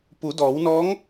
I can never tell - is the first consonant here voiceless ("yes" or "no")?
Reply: yes